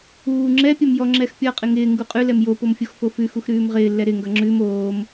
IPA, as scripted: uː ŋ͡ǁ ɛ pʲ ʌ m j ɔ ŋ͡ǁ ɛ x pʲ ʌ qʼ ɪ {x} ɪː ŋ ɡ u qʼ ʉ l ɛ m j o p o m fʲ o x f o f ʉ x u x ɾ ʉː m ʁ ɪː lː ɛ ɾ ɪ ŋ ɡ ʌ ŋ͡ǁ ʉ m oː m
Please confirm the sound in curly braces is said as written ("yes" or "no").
no